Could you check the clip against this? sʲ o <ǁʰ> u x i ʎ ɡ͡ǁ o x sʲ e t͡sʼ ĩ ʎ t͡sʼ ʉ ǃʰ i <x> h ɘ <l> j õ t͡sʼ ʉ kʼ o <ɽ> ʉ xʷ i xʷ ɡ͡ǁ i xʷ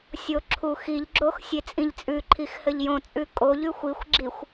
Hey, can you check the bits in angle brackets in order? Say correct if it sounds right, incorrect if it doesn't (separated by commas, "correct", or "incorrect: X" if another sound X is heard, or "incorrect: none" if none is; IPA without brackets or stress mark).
correct, correct, incorrect: ʎ, incorrect: ʎ